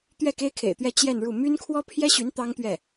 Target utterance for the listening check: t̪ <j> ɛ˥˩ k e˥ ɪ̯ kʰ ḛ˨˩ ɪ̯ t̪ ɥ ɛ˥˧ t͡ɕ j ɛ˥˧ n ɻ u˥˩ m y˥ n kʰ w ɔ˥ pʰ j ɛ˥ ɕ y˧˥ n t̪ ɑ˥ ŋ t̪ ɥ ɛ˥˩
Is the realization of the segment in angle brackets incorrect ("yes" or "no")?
yes